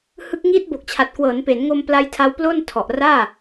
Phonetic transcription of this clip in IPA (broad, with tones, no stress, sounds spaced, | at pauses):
h ɯ˦˥ k̚ ŋ iː˦˥ t̚ b o˨˩ k̚ t͡ɕʰ a˨˩ t̚ k w ɤː˩˦ n p e˩˦ n ŋ o˧ m p l a˦˥ j tʰ a˦˥ w p l o˥˩ n tʰ ɔ˨˩ ʔ r aː˥˩